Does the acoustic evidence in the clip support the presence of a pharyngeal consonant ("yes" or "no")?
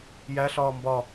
no